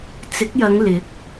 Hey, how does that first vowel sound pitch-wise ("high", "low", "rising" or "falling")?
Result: rising